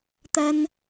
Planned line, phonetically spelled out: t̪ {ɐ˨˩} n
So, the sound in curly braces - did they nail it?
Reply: no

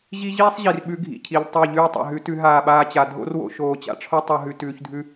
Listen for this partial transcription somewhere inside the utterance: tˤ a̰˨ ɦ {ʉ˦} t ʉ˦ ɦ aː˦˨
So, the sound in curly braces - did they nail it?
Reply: no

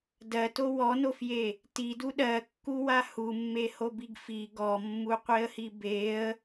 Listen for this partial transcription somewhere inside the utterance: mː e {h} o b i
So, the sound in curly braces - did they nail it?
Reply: yes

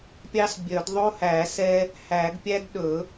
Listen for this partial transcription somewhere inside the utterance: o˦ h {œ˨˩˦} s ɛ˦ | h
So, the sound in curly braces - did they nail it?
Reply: no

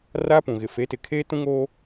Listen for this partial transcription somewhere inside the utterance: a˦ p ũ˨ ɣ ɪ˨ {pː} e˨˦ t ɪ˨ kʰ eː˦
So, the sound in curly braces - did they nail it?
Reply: no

